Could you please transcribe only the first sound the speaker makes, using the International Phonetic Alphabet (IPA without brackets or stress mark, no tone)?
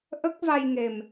ʔ